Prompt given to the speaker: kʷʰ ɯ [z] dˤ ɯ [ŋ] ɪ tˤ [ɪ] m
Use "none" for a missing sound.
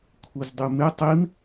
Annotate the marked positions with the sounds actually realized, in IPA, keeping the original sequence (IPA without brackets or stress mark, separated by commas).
z, m, i